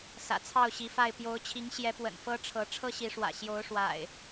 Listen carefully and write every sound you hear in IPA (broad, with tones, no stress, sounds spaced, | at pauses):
s ä̰˨˩ t͡sʰ ɑ˥˨ ʊ̯ ɕ i˨˦ f a˥˨ ɪ̯ p j o˨˦ ʊ̯ t͡ɕʰ i˨˦ ŋ ɕ j ɛ˨˦ p w ə̰˨˩ n f ɤ˦ ʈ͡ʂʰ ɤ˨˦ ʈ͡ʂʰ ɤ˦ ɕ i˨˦ ʂ w ä̰˨˩ ɕ j o˨˦ ʊ̯ ʂ w a̰˨˩ ɪ̯